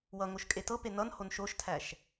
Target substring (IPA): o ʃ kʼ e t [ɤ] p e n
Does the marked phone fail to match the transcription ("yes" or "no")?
no